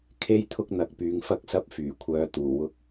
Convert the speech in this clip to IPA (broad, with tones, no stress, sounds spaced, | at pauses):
kʰ e˥ j t̪ʰ ʊ˥ k̚ n̪ ɐ˨˥ k̚ p yː˨ ŋ f ɐ˧ k̚ s ɐ˧ p̚ f yː˨˩ kʷʰ œː˧ t̪ uː˨˩ w ʊ˧ k̚